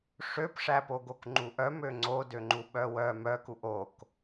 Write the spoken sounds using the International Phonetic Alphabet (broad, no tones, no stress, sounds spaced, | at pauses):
ʂ ø p ʂ æ p o ɡ o k ŋ͡ǃ u ʔ œ m ø ŋ͡ǀ o d ø ŋ͡ǃ u ɓ œ w œ m œ k u ʔ o k